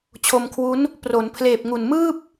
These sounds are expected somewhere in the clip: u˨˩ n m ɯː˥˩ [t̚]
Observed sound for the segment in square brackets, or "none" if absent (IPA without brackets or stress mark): p̚